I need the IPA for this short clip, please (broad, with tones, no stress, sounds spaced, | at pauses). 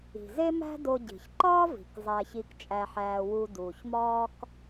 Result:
i̤˩ z e˥ m æ̤˥ d o˧ ɟ i̤˩ ç ǃ ɒː˥ v i̤˩ k zˤ æ˧ ç i˧ k t͡ʃʼ æ˧ ħ æː˧ w u˧ d uː˩ ç m ɒː˥ k